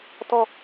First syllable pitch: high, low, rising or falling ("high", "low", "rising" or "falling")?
falling